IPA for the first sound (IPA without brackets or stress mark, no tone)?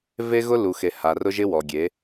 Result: v